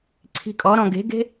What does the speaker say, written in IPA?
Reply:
ǀʰ i̤ kʼ ɔ ɾ ɔ̃ ɡ e̤ ɡ e̤

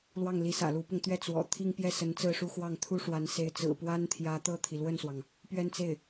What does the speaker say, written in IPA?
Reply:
l w ɑ˥˩ ŋ l i˧˥ s ä̰˨˩ l u˧˥ p ʊ˧ ŋ t̪ ɥ ɛ˥˩ t͡s w ɔ̰˨˩ t̪ʰ i˥˧ ŋ p j ɛ˥˩ s ə˧˥ n t͡s ɹ̩˥˧ ʂ u˥˧ x w ɑ˥˩ ŋ t̪ʰ u˥ ʂ w a˧˥ n s e˧˥ ɪ̯ t͡s ɹ̩˨˩ p w a˥ n t̪ʰ j ä˧˥ t̪ ɤ˥˩ t̪ʰ i˩ l w ə˥˩ n s w ɑ˩ ŋ | p ɥ ɛ˥˧ n t͡s e˥˩ ɪ̯

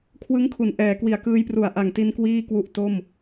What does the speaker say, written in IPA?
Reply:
kʰ w ɯ˦˥ ŋ kʰ u˩˦ n ʔ ɛː˩˦ k w i˨˩ a̯ k ɯː˧ j p r u˨˩ a̯ ʔ a˨˩ ŋ t i˧ n k w iː˥˩ k w u˦˥ ʔ t o˥˩ m

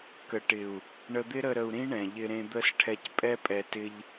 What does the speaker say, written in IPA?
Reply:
k ə˨ ʈ ɪ˨ u̯ | ɳ ə˧ d̪ ɪ˦ ɾ ə˧ ɾ ə˧ u̯ ɾ ĩ˦ ɳ ɛ̃˨ ʎ ɪ˧ ɾ ẽ˧ d̪ ə˦˨ s ʈʰ ɛ˧ c pʼ ɛ˦ pʼ ɛ˧ t ɪ˧ ʎ

